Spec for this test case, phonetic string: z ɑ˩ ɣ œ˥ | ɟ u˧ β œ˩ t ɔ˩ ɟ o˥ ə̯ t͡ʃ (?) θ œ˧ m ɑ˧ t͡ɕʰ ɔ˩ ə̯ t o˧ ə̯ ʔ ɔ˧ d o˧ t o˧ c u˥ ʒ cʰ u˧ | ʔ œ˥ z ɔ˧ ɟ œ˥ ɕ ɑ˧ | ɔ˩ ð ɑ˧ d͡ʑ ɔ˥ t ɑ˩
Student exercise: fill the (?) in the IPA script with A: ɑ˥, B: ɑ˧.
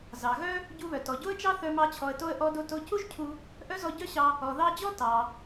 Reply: A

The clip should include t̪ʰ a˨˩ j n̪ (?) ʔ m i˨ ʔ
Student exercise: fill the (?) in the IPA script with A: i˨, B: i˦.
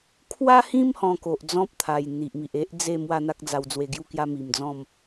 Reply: A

